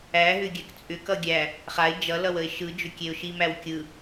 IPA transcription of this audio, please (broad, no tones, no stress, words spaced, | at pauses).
æɦʏ ɡʲækt͡sʼʏkʌ ɡʲæ | χaɪ̯ d͡ʒʌlʌw əɪ̯ʃɯd͡ʒʏ kʲeʊ̯ʃimæw kʲɯ